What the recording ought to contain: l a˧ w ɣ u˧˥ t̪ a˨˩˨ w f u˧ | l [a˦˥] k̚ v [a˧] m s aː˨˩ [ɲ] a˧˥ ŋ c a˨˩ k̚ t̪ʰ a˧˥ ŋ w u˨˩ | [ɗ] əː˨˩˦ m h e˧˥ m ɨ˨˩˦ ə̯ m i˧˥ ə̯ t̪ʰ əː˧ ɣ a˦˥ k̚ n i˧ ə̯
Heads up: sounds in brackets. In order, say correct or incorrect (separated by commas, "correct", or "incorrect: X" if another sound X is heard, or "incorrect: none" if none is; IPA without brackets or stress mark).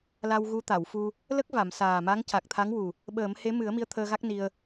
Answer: incorrect: ə˦˥, incorrect: a˨˩˨, incorrect: m, incorrect: ɓ